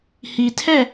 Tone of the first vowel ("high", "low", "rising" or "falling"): low